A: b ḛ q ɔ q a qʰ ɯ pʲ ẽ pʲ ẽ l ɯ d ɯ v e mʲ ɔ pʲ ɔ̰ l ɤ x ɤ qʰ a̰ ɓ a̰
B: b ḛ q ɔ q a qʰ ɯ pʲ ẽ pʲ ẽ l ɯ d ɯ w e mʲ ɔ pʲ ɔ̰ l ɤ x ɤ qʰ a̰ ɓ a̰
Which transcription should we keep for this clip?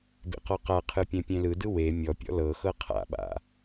B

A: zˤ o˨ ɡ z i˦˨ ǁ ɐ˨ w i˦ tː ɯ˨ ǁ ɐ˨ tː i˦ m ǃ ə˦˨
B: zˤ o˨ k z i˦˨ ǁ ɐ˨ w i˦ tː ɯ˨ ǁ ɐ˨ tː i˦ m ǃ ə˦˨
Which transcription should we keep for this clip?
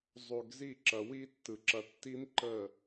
A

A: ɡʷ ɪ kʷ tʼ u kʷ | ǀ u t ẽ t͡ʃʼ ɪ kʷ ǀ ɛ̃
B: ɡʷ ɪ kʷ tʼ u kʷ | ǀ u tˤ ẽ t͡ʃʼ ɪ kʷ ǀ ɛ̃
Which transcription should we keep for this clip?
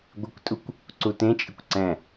A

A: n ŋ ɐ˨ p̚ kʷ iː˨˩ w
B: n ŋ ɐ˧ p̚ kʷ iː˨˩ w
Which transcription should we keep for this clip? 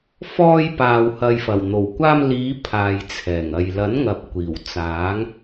A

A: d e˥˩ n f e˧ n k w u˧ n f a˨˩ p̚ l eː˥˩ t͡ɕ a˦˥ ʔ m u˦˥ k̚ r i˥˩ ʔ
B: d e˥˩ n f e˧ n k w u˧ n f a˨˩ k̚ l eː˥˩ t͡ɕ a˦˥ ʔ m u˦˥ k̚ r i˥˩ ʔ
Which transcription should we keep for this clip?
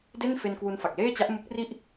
B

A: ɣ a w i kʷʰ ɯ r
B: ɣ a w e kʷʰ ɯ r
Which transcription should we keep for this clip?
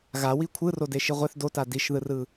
A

